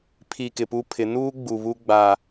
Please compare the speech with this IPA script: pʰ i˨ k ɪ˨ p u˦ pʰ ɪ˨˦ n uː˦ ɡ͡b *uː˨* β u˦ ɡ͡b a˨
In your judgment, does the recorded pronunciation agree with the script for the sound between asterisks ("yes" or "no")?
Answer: no